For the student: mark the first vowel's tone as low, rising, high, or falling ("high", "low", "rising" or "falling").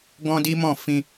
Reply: high